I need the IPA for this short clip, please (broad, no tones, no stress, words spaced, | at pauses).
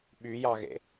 ɓyjɑɣḛ